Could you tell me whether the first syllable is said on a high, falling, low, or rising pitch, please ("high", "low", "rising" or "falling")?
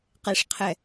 high